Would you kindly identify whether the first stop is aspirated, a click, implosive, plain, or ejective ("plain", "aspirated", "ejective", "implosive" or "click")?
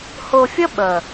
implosive